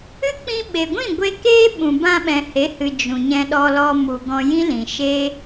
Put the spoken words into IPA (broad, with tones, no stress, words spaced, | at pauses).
ɨ˦ k͡pĩ˧ɓe˨ɡʷĩ˦˨ɡʷe˧ keː˦ ɓũ˨bã˧ɓɛ̃˨ he˨˦hɨ˨ d͡ʒũ˨ɲɛ̃˧ɗɔ˧lɔ˧ mu˨ ɡɔ̃˧jĩ˦lĩ˨ ʃe˦